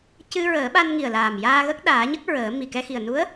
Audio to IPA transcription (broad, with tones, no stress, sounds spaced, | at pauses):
c ɨ˧ ɹ əː˨˩˦ ɓ a˧ n ŋ i˨˩ ə̯ l aː˨˩ m j aː˧ ɣ ə˦˥ k̚ ɗ aː˨˩˦ ɲ ə˦˥ k̚ ɹ əː˨˩˦ m i˨˩ k ɛ˧ x i˨˩ ə̯ n u˧˥ ə̯